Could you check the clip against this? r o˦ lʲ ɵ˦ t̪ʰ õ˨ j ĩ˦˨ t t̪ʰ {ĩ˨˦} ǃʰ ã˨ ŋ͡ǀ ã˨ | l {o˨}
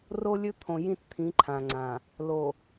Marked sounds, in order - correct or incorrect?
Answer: correct, correct

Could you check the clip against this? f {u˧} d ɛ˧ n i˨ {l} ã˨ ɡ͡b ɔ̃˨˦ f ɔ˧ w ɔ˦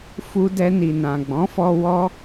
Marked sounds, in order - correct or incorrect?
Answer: correct, incorrect

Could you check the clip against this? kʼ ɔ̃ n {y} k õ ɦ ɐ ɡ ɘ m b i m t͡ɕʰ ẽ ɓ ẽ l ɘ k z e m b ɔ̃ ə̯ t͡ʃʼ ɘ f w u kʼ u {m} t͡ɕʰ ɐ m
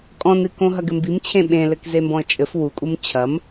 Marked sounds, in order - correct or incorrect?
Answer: incorrect, correct

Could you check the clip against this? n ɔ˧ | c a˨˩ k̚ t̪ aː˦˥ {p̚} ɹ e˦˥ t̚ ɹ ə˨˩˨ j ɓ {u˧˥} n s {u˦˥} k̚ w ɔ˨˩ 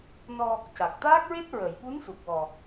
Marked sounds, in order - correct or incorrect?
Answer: incorrect, correct, incorrect

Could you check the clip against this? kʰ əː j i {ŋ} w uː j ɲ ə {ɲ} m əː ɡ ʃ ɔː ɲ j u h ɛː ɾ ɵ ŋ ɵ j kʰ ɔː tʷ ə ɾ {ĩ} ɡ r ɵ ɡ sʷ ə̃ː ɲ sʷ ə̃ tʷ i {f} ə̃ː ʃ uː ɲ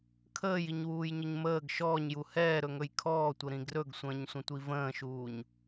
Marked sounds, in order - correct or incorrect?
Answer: incorrect, correct, correct, incorrect

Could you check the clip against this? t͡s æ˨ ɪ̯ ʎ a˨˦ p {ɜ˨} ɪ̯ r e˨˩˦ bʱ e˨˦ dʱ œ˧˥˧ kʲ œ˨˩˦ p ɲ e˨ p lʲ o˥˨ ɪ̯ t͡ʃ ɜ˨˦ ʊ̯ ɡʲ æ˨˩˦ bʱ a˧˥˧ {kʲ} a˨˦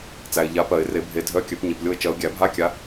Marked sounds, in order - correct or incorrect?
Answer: incorrect, correct

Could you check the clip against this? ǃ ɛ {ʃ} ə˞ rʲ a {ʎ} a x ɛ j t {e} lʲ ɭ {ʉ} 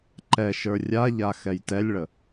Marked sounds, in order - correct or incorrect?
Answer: correct, correct, incorrect, incorrect

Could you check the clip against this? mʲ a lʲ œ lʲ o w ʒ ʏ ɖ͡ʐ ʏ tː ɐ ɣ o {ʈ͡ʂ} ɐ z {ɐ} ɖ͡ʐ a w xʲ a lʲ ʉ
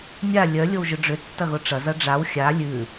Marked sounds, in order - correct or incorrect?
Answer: correct, correct

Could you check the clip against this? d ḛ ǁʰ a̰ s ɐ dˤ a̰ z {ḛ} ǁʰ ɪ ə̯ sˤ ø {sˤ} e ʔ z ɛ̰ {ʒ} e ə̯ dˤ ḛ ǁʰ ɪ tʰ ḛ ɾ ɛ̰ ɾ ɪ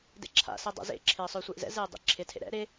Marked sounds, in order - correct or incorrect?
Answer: correct, incorrect, incorrect

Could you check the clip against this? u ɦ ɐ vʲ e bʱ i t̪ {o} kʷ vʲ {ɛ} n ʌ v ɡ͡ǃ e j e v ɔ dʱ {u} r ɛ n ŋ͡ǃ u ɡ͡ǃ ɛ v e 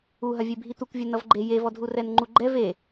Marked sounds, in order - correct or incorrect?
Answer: incorrect, correct, correct

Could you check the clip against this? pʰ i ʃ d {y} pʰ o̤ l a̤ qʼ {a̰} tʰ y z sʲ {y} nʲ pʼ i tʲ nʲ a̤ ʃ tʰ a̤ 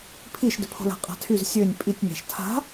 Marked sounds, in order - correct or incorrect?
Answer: incorrect, incorrect, incorrect

